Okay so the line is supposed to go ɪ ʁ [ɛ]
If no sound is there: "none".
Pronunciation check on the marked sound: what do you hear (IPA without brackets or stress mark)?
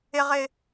ɪ